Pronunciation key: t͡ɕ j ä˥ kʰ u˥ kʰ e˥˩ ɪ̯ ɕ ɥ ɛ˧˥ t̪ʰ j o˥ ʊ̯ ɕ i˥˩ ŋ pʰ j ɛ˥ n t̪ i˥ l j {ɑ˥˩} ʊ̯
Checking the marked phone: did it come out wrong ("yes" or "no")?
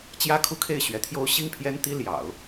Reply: yes